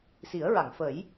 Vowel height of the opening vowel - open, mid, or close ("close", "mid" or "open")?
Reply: close